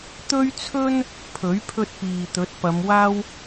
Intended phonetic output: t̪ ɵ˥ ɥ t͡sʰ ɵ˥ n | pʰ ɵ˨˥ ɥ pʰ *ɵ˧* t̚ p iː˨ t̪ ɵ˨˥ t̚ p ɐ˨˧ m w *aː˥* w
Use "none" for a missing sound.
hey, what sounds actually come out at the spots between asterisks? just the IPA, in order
ɵ˧, aː˥

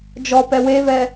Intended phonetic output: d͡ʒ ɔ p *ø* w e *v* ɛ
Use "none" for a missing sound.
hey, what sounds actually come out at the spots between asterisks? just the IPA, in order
ɛ, v

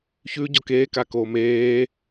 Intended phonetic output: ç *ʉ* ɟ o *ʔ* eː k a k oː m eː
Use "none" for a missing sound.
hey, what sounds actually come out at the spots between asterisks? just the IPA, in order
ʉ, k

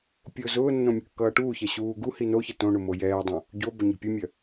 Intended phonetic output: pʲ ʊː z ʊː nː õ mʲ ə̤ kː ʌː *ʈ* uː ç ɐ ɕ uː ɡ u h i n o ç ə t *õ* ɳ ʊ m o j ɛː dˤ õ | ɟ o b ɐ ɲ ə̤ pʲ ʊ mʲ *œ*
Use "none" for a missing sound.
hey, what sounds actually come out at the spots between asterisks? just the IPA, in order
ʈ, õ, œ

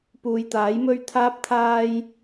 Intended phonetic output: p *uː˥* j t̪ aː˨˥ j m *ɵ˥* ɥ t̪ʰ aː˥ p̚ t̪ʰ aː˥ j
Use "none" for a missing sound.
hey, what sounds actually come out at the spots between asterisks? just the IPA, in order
uː˨, ɵ˥

